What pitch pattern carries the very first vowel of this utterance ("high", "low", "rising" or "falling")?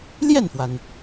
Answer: falling